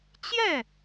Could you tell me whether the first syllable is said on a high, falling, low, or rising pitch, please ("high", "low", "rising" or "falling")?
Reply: falling